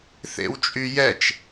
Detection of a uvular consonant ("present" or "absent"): absent